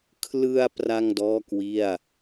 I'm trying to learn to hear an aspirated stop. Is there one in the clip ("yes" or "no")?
yes